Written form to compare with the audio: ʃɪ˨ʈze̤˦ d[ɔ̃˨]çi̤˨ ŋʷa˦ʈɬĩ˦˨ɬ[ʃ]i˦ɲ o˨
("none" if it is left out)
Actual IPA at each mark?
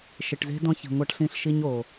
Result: ɔ̃˦, ʃ

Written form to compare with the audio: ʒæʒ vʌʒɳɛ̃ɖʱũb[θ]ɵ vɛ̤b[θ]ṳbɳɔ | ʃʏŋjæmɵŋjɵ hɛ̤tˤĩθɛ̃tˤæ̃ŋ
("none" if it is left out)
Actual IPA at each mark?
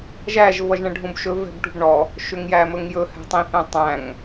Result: ʃ, ʈ

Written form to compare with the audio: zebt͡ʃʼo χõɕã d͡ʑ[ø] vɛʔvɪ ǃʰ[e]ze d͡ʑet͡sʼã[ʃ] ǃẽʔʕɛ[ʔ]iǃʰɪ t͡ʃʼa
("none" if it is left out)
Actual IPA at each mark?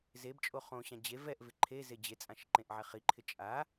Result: e, e, ʃ, χ

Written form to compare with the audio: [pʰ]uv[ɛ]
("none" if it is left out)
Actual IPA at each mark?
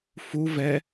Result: f, ɛ

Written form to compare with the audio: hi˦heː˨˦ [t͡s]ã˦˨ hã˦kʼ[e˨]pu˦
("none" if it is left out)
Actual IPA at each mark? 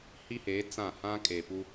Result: t͡s, e˨

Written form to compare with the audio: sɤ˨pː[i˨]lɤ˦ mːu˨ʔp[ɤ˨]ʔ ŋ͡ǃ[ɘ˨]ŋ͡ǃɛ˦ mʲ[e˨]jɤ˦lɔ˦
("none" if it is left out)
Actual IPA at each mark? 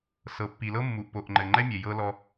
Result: i˨, o˨, ɘ˨, e˨

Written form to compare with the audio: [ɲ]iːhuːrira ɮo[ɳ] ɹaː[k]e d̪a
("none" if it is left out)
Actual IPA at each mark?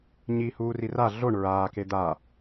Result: ɲ, ɳ, k

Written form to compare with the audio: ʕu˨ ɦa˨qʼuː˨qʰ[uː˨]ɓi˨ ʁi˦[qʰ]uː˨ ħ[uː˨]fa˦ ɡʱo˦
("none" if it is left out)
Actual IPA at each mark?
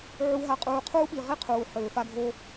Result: uː˦, qʰ, øː˨

